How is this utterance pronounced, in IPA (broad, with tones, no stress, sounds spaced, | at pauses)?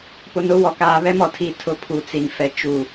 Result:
p ʊ˨ n ʊ˨˦ w ɔ˨ k aː˨ β ɛ˦ m ɔ˨ tʰ i˨ tʰ ʊ˨ pʰ u˨ t͡s i˨ n f ɛ˨ t͡ʃ u˨